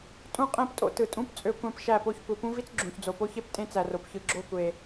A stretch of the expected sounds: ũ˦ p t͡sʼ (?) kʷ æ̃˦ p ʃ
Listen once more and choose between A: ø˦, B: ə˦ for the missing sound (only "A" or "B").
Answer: A